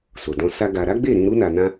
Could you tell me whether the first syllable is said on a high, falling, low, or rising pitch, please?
low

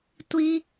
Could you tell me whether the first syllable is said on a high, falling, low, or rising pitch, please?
high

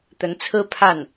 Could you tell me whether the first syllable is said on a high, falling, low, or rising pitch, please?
rising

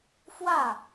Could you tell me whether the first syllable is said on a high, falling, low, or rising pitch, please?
falling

